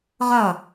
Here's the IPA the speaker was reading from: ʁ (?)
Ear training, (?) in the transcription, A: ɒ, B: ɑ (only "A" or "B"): A